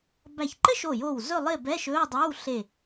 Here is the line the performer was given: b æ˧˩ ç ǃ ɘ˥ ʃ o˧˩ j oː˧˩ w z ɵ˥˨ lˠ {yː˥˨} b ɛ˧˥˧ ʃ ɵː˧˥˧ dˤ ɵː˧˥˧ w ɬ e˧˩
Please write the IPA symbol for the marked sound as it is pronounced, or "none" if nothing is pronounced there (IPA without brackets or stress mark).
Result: ɪː˥˨